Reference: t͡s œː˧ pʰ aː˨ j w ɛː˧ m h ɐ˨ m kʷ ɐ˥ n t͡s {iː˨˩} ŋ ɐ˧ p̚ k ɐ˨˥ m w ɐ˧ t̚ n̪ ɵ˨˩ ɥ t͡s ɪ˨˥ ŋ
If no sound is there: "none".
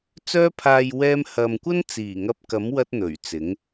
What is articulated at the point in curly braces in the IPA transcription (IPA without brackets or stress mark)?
iː˨˩